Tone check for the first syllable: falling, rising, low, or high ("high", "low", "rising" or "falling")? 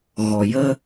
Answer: low